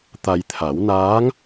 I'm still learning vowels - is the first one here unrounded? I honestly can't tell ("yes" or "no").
yes